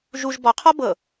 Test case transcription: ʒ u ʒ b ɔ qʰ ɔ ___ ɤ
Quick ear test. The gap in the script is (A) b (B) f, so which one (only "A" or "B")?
A